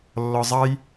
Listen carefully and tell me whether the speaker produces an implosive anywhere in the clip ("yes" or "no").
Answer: no